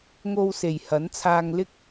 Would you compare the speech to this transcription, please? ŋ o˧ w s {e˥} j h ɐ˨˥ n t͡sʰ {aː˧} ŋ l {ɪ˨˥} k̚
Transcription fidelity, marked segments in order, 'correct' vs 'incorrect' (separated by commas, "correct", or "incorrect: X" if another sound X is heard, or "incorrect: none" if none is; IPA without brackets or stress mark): incorrect: e˨˩, correct, incorrect: ɪ˥